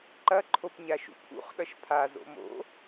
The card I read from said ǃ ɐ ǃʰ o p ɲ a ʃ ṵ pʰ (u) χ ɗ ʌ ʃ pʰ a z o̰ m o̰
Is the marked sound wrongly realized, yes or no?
yes